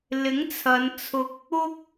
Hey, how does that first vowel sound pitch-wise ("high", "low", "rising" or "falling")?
rising